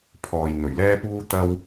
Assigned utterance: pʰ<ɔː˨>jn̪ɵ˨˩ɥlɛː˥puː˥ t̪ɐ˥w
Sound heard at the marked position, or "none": ɔː˨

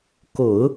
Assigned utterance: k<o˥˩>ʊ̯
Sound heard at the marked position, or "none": o˨˩˦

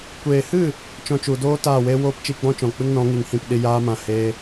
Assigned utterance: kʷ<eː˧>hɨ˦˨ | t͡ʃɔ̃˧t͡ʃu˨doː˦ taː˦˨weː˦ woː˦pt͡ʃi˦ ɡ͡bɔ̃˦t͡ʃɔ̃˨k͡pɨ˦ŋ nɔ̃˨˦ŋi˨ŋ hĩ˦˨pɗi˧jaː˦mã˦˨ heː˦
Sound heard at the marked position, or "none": eː˨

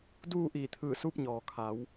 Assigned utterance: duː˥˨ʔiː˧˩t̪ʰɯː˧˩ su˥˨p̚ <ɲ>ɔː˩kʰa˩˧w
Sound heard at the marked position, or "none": ɲ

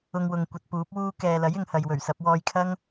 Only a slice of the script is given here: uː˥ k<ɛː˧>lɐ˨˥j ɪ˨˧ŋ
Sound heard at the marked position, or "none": ɛː˨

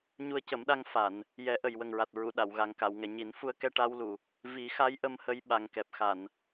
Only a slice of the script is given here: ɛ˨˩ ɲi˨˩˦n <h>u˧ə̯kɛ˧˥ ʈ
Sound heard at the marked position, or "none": f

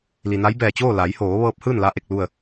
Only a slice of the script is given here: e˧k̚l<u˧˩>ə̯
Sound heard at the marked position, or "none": u˥˨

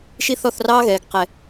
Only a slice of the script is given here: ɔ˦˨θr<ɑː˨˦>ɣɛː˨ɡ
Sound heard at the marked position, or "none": ɑː˦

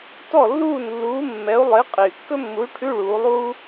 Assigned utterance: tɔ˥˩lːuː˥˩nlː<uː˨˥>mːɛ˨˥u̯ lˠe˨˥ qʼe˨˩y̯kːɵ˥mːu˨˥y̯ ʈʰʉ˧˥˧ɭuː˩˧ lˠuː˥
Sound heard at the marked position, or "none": uː˨˥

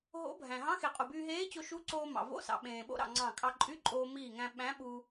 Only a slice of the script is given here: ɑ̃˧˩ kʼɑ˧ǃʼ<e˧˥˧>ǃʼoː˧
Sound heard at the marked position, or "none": y˧˥˧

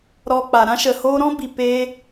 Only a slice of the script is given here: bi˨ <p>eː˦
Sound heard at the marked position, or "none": p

